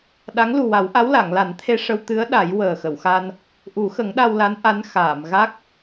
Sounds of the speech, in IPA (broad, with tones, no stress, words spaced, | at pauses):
ɗa˧˥ŋ lu˨˩wa˨˩˦wʔa˧˥w la˨˩˨ŋla˨˩˦n t̪ʰe˧ʂə˧wt̪ɨ˧˥ə̯ ɗa˨˩˦j wəː˨˩xə˨˩˨wxa˧n | ʔu˨˩˦xə˨˩˦ŋ ɗa˧wla˧˥n ʔa˧˥n xaː˨˩˨mɣa˦˥k̚